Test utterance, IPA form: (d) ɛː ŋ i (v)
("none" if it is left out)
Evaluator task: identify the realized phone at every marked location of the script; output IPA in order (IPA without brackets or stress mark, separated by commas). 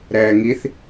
ɾ, θ